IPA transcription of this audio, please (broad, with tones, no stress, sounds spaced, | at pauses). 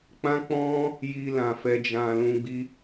k͡p ã˦ k͡p ɔ̃˦ | j i˧ l ã˨ f ɛ˧ d͡ʒ ã˧ l ũ˧ ɡ͡b i˧